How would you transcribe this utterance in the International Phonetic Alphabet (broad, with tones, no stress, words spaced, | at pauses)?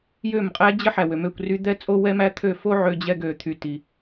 jø˦˨mqʼæ˦d͡ʑə˦ ħæ˨wø˨mø˦˨kʷ ry˦ d̪ɛ˦t͡sʼo˦ wɛ˦mæ˦ t̪ʰø˦˨fo˦ ʕø˧ d͡ʑɛ˧ɡø˨t̪ʰy˨ ti˨